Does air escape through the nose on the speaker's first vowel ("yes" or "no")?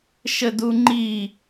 no